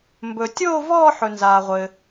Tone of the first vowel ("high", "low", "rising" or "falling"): low